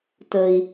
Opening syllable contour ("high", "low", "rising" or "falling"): low